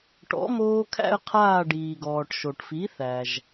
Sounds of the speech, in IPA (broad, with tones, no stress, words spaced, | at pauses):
ʈɔ̰˨˥moː˦ kʰæ̰˦ə̯qʰaː˦˨ɖiː˩ɡɔː˩ʈ ʃo˩ʈfi˨˥θæ˩ʒ